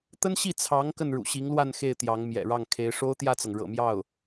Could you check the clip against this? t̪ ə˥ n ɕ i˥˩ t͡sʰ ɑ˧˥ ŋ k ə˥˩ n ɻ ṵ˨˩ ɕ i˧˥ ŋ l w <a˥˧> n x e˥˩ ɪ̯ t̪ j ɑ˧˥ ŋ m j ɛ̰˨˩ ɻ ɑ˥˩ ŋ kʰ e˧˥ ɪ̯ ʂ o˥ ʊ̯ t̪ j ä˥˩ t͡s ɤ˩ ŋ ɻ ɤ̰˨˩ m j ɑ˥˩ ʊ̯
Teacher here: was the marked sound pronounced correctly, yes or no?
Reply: yes